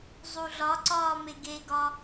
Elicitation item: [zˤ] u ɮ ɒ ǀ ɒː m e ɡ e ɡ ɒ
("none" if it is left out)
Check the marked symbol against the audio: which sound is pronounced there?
zˤ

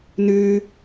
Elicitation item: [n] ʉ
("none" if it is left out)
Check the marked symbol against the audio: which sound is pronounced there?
n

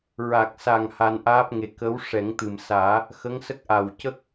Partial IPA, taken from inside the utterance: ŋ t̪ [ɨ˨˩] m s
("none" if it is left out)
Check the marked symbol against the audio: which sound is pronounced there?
ɨ˨˩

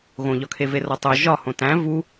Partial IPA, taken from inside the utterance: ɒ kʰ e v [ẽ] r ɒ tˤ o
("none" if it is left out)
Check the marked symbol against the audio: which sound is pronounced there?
e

